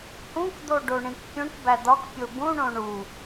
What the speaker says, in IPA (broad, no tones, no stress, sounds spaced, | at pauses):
h ũ k d̪ o ɖ o ɳ ĩ k pʲ ũ ʈ b æ d̪ ɒ k pʲ o b ũ ɳ õ ɳ u